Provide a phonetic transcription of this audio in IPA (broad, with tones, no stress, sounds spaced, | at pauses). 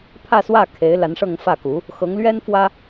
pʰ ä˥˧ s w ä˥˩ kʰ e˧˥ ɪ̯ l a˧˥ n ʂ ɤ˥˧ ŋ f ä˥˩ k u˧˥ | x ɤ˧˥ ŋ l ɥ ɛ˥ n f w ä˥